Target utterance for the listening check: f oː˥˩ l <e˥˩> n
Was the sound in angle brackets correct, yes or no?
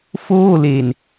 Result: no